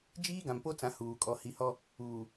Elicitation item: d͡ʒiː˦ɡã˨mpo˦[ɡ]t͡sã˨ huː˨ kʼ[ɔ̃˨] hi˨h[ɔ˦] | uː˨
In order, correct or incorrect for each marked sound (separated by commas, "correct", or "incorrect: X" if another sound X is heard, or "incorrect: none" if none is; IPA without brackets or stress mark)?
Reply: incorrect: none, incorrect: ɔ˨, correct